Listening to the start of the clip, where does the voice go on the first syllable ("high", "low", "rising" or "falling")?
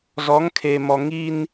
rising